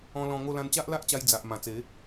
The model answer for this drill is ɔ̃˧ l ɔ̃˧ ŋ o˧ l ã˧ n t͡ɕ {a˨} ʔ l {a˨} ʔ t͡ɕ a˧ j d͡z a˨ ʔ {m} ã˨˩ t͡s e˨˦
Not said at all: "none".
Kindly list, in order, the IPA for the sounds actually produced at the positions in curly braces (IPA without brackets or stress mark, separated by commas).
a˦, a˦, m